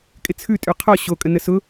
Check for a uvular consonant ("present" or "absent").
present